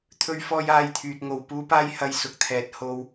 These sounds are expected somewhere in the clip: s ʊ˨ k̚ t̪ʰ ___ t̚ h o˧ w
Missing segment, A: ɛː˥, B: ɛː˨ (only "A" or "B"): B